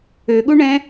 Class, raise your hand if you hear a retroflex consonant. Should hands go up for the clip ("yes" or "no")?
yes